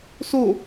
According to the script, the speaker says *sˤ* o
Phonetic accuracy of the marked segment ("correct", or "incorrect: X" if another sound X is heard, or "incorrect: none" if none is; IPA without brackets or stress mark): incorrect: s